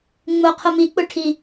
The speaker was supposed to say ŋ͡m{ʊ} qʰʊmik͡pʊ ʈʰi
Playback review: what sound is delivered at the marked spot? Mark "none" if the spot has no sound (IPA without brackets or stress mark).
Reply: ʊ